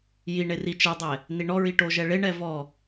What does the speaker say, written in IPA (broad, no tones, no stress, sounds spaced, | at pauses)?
j i ɳ e r i t͡ʃ ɛ dˤ ɛ | n i ɳ ɔ ɹ i ʈ o ʒ ɛ ɭ e ɳ ɛ v ɔ